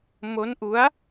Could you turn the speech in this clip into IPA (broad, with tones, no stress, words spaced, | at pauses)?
mo˦˥nʔu˦˥a̯